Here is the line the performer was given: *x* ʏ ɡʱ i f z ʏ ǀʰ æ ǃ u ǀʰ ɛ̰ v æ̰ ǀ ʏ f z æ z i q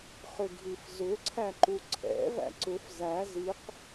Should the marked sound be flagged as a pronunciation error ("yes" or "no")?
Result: yes